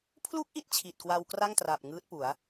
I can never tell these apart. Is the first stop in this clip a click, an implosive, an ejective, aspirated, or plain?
aspirated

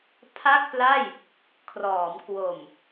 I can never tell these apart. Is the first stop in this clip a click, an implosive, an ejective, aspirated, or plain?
aspirated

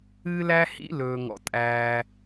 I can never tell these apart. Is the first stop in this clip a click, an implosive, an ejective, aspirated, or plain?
ejective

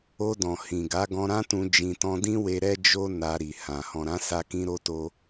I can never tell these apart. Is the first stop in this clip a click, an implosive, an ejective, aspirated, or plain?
plain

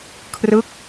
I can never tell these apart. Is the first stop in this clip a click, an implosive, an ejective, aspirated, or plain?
aspirated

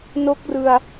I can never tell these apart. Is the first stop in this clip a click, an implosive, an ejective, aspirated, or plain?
plain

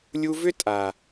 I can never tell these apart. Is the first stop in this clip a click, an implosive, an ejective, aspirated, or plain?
ejective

